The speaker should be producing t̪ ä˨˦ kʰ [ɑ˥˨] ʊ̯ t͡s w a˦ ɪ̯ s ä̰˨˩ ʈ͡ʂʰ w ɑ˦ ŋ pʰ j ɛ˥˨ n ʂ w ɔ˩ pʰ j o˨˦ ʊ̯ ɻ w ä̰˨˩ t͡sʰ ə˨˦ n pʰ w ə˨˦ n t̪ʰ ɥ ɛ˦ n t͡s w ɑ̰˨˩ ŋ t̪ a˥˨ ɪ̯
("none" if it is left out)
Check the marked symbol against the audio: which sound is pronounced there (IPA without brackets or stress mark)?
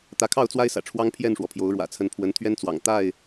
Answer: ɑ˥˨